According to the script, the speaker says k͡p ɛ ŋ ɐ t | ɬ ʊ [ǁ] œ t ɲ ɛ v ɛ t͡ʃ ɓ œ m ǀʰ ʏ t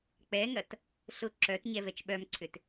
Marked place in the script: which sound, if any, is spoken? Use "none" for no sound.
ǁ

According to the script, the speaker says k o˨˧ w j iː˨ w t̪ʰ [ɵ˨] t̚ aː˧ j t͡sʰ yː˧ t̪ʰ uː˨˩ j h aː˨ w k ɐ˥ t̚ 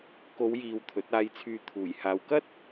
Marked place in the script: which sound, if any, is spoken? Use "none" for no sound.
ɵ˨˥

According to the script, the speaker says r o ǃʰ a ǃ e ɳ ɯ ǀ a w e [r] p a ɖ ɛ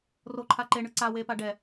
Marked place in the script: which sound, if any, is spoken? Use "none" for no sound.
none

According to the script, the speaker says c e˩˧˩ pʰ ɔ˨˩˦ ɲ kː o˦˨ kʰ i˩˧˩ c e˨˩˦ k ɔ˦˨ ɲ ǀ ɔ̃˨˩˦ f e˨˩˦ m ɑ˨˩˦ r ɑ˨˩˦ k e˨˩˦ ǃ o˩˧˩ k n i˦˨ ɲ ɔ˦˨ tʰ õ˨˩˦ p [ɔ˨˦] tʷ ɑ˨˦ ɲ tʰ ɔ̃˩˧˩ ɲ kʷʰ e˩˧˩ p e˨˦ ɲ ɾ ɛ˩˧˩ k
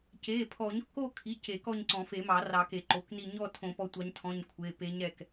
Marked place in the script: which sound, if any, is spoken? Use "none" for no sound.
ɔ˨˦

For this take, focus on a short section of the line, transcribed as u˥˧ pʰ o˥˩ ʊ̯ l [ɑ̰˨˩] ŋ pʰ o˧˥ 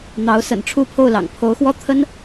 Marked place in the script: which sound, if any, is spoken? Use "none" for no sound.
ɑ̰˨˩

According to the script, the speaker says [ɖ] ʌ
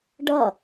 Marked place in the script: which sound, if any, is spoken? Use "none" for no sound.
ɖ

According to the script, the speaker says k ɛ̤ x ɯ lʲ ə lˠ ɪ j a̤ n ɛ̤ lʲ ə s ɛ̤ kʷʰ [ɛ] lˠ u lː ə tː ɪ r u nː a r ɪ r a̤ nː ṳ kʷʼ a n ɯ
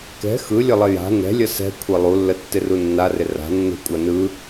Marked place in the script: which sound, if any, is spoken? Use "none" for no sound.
ɛ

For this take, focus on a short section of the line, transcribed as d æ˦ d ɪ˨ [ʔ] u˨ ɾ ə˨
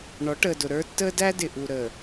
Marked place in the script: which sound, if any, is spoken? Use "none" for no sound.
ʔ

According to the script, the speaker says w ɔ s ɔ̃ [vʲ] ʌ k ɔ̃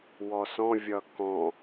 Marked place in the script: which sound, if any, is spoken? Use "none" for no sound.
vʲ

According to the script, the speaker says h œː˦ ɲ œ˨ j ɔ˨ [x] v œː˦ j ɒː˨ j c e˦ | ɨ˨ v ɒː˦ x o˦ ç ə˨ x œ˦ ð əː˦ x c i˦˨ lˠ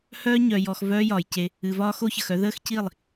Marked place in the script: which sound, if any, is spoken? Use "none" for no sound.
x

